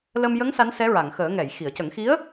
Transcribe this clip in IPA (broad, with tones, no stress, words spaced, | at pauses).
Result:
lə˧m jə˧˥ŋ sa˧˥nsɛ˧˥ɹa˨˩˨ŋ xəː˨˩˦ ŋɛ˨˩˨jxi˨˩˨ə̯cə˨˩˦ŋxi˧˥ə̯